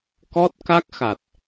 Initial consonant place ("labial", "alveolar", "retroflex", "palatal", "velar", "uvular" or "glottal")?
velar